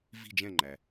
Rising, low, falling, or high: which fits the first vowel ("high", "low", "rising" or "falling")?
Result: falling